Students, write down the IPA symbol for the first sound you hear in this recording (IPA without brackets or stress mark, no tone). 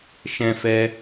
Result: ʃ